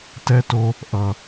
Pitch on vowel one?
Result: high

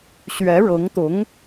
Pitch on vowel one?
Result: rising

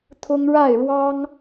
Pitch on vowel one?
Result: high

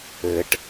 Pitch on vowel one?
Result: low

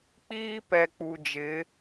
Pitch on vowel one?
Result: high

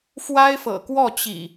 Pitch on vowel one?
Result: high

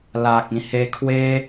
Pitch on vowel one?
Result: low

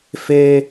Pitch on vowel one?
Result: high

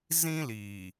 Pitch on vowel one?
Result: high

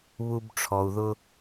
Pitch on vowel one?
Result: high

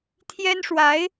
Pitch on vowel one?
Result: high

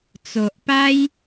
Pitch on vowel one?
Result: low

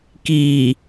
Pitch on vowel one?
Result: low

